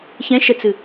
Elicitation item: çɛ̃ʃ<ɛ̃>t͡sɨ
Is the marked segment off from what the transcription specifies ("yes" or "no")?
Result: yes